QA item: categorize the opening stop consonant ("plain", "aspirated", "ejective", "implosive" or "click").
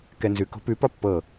plain